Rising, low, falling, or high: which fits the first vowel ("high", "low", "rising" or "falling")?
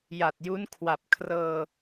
low